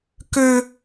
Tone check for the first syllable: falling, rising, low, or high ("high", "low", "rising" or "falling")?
high